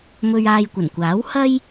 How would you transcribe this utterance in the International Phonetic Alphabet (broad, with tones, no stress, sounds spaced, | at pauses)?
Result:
m ɵ˧ ɥ aː˧ j kʷ ɐ˨˩ n kʷ aː˨˥ w h ɐ˥ j